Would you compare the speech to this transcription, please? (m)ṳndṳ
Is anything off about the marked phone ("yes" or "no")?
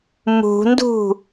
no